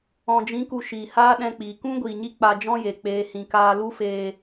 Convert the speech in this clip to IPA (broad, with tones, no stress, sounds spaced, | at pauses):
ɔ̃˨ d͡ʒ ĩ˨˦ k u˨ ʃ iː˨ h aː˦ ɗ ɛ̃˧ k͡p iː˨ k ũ˦ ɡʷ iː˨ ɲ i˧ k͡p a˧ d͡ʒ ɔ̃˦ j e˨ k͡p eː˨ h ĩ˨ k aː˧ l u˦ f eː˧